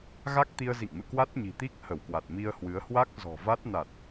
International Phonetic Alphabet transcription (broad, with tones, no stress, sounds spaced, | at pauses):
ɣ a˦˥ k̚ t̪ i˧ ə̯ z ḭ˧˨ ŋ m ɨ̰˧˨ k w a˦˥ t̚ ɲ i̤˨˩ t̪ i˦˥ k̚ h ə˧˩ w k w a˨˩ t̚ m i˧ ə̯ h w ɨ˨˦ ə̯ h w a˦˥ k̚ z ɔ̤˨˩ v a˦˥ t̚ n a˨˩ t̚